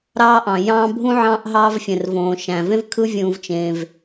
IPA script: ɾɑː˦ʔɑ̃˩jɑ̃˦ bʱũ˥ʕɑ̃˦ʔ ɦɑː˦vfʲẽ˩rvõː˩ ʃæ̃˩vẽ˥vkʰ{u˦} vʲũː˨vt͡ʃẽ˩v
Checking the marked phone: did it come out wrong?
yes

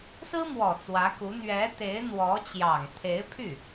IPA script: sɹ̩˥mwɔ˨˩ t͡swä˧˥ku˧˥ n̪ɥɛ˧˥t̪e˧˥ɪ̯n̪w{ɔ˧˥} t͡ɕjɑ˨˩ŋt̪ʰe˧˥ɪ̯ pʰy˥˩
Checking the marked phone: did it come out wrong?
no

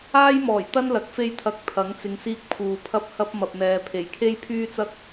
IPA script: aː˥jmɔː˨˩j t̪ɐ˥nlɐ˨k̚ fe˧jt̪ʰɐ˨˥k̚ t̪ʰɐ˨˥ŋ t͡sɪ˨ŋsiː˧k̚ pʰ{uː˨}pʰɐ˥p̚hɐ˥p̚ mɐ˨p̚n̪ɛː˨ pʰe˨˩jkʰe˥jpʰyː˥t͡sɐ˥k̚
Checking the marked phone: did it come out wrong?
no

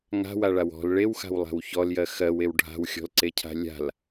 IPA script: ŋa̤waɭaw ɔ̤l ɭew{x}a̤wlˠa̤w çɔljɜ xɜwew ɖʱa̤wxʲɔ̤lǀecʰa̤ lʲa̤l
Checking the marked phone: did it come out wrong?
no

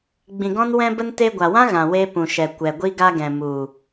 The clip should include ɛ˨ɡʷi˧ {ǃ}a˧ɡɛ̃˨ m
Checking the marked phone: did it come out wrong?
yes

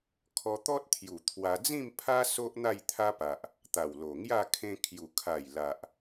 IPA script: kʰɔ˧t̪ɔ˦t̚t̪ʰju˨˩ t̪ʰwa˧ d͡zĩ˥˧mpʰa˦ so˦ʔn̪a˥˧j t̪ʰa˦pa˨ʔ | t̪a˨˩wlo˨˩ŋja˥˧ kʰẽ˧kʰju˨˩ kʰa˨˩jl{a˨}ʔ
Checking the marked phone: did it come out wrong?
no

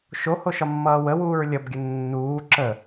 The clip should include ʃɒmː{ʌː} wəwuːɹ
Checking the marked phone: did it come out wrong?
no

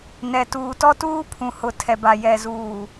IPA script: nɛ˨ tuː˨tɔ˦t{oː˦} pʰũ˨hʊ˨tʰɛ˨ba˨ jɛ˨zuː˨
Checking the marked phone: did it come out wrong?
yes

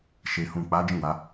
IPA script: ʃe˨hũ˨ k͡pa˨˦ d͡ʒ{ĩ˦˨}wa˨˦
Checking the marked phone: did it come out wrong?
no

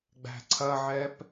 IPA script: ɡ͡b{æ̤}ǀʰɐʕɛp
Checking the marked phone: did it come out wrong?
no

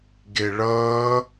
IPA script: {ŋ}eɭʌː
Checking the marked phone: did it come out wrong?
yes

